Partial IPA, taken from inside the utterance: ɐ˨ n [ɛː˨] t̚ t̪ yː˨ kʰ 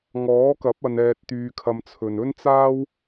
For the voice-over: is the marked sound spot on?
yes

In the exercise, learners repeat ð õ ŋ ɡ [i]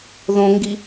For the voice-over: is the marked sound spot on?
yes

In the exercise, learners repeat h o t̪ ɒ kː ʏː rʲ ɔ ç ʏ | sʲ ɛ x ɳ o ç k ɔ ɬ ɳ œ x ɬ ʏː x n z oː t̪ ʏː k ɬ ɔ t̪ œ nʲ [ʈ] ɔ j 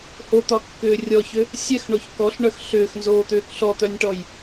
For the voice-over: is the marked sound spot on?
yes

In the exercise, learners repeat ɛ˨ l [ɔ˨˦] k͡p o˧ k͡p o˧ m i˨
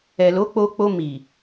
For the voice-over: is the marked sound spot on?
no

